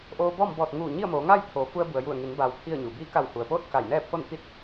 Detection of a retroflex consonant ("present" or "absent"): absent